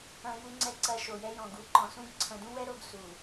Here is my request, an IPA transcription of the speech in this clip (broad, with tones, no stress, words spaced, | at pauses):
ɐ̃˦ju˦ŋ͡ǀɛ˦ ǀɐ˨ ʃo˨jɛ˦jɔ̃˨ ɡu˨ǃɔ̃˨sũ˦ɡ ǀʰɐ̃˨dũ˦wɛ˦ ɾo˦ɡ su˨